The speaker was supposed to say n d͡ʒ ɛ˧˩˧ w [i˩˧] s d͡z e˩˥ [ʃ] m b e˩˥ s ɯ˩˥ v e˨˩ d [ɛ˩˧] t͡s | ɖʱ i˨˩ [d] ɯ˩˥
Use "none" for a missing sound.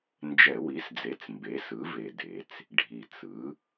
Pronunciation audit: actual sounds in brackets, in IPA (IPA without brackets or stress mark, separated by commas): i˩˥, t͡s, e˩˧, t͡s